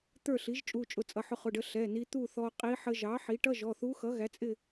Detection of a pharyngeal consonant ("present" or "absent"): present